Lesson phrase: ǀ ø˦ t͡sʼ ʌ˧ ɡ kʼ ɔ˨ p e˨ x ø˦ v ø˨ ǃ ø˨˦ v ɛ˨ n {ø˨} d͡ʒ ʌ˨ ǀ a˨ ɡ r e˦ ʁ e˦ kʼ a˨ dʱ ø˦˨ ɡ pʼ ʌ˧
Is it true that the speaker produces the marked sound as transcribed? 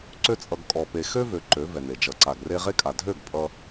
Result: no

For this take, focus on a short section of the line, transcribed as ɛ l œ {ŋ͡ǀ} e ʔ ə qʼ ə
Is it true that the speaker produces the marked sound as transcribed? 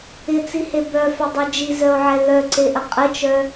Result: no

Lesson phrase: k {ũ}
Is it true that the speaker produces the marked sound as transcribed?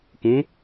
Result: yes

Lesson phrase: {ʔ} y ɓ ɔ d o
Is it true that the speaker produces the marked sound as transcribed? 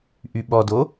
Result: yes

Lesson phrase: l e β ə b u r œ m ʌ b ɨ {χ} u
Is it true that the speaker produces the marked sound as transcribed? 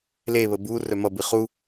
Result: yes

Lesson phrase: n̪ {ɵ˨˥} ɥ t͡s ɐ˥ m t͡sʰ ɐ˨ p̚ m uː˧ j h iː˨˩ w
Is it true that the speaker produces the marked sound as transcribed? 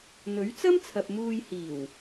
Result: yes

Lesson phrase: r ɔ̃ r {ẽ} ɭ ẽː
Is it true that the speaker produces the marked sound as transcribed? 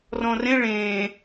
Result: yes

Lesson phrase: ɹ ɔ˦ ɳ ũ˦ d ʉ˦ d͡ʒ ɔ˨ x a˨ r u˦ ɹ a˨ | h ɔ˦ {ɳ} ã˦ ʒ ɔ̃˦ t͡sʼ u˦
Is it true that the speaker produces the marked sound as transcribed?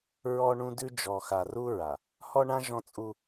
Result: yes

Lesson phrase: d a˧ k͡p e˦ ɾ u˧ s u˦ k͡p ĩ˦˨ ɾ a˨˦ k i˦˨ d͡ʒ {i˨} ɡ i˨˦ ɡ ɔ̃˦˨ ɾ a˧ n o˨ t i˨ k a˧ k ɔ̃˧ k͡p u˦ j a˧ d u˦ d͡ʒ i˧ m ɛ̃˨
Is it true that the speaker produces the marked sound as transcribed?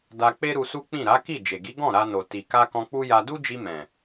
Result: no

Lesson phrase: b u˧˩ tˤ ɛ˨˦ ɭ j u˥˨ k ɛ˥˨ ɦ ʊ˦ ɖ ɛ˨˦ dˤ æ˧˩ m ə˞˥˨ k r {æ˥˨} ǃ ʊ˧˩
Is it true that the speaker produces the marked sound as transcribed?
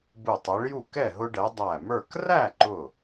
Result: yes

